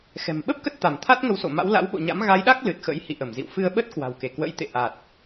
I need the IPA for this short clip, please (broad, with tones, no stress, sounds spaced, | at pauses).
x ɛ̤˨˩ m ɓ ə˦˥ p̚ k ə˦˥ t̚ t̪ a˧˩ m t̪ʰ a˦˥ t̚ ŋ ə˨˦ w s o̰˧˨ m a̰˧˥ w l a̰˧˥ w ɓ o̰˧˨ ɲ a̰˧˥ m ɣ a˨˦ j ɗ a˦˥ k̚ l ɨ˨˩ t̚ x ə̰˧˥ j h ḭ˧˨ ʔ ə˧˩ m z ḭ˧˨ w f ɨ˧ ə̯ ɓ ə˦˥ t̚ k w a̤˨˩ w k e˧˩ k w ə̰˧˥ j t̪ ḛ˧˨ ʔ a˨˩ t̚